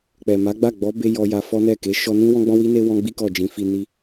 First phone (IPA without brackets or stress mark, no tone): k͡p